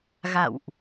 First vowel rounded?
no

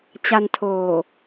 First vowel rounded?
no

